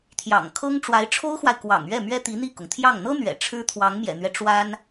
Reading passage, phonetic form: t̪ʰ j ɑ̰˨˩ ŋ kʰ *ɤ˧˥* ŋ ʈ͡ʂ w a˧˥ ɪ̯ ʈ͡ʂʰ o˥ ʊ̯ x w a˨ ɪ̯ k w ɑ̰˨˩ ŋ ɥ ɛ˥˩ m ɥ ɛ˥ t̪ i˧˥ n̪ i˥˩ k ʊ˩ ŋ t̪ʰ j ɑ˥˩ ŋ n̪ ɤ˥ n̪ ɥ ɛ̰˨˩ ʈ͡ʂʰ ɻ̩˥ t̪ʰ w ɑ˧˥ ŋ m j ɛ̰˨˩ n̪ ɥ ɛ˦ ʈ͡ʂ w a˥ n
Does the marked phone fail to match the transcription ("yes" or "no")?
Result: yes